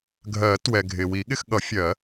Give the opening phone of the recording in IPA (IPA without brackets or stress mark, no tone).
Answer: ɡʱ